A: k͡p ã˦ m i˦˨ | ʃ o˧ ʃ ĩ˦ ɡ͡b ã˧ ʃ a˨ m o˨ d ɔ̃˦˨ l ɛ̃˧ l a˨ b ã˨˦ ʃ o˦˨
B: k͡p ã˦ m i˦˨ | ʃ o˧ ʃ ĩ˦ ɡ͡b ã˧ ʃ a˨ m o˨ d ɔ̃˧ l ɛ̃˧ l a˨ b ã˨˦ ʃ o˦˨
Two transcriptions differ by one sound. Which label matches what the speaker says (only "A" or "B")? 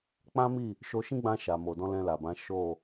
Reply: B